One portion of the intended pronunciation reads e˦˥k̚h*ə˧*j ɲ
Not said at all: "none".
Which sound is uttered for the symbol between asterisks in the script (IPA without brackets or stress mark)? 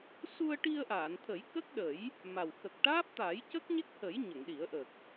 ə˨˩˦